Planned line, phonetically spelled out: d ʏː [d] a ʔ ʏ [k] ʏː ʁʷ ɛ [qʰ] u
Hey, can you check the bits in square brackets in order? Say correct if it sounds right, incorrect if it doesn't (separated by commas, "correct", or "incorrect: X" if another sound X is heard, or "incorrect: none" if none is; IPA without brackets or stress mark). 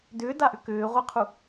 correct, correct, correct